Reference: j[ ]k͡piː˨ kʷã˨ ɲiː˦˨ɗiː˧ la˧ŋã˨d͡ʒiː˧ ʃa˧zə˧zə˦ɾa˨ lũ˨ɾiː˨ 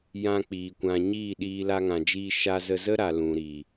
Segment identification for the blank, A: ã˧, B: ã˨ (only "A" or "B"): A